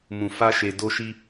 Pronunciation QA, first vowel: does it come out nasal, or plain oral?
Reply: nasal